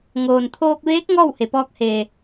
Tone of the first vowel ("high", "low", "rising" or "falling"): low